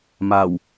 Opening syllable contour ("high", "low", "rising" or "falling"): low